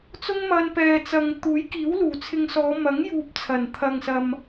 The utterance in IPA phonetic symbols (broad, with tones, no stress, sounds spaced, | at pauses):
t͡s ʊ˥ ŋ m ɐ˧ n p ɛː˨ t͡s ɐ˨ ŋ t̪ uː˨˥ j k iː˨˥ w l uː˨˩ t͡sʰ ɪ˧ ŋ s ɔː˨˧ m ɐ˨˥ ŋ j uː˨ p̚ t͡sʰ ɐ˨˩ n t̪ʰ ɐ˨ ŋ s ɐ˨ m